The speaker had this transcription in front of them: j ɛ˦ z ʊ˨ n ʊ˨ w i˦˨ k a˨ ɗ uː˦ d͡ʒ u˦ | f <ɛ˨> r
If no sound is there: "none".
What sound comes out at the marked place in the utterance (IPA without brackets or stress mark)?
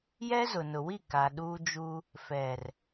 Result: ɛ˨